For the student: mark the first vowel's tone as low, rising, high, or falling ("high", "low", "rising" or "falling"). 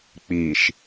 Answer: low